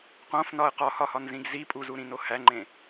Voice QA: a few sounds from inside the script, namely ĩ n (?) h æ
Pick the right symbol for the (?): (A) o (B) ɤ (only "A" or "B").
A